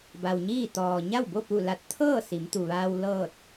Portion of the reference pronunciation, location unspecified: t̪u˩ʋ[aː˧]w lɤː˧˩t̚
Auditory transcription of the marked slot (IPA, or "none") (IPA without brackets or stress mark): aː˧